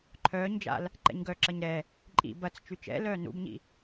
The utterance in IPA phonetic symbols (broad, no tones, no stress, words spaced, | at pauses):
ǃʰœːɲd͡ʒa̰l | ǃɛ̰ɲɡœǁɐɲ ɾɛ | ǃʼḭ bɐt͡s t͡ʃyt͡ʃɛ̰lœː nṵbɲḭ